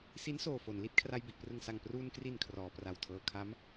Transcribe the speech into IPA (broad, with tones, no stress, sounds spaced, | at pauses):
s i˦˥ n s oː˨˩ f o˩˦ n l i˦˥ t̚ kʰ r a˧ j b i˨˩ ʔ p r ɯ˨˩ ŋ s a˨˩ ŋ p r uː˧ n k r i˨˩ n kʰ r ɔː˩˦ p r a˨˩ w tʰ ɤː˧ kʰ a˦˥ m